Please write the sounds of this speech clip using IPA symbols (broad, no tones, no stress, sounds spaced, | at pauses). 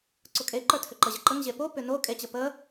ǀ ʊ kʼ e ǃ ə˞ tʰ ʏ ǃ ə ʑ ə ǃ ə ŋ ʑ e p o p ʏ n o kʼ e t͡ɕ ə p ə